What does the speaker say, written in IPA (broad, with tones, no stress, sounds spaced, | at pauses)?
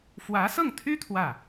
f w ä˧˥ s ɤ˥˩ ŋ t̪ʰ y˥ t̪ʰ w ä˥˩